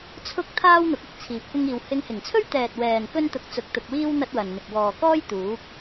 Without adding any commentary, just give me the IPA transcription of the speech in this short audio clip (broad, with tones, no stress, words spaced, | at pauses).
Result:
t͡sʰʊ˥k̚ t̪ʰaː˥wn̪ʊ˨˥k̚ ɪ˧k̚t͡sʰiː˨p̚kʷɪ˥ŋiː˧w hɪ˧ŋhɪ˨˩ŋt͡sʰɵ˥ɥt̪ɛː˨t̚ wɛː˨n kɵ˥nt̪ʊ˧k̚ t͡sʊ˧k̚t̪ʊ˧k̚wiː˥w n̪ɐ˥t̚wɐ˨nn̪ɪ˨k̚ wɔː˨kɔː˥j t̪uː˨˥k̚